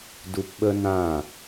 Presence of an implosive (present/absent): present